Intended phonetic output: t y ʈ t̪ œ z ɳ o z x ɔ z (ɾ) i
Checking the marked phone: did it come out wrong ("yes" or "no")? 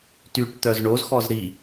no